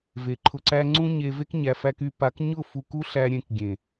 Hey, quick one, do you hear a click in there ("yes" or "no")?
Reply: yes